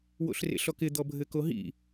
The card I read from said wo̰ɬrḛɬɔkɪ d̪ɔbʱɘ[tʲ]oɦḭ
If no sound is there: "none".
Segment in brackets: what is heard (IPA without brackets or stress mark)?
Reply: k